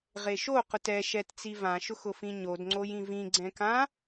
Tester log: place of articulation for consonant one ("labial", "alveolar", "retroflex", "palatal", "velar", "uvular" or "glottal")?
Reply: uvular